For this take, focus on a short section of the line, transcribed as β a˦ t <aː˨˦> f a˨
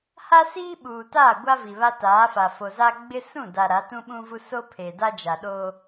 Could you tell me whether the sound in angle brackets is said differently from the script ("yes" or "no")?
no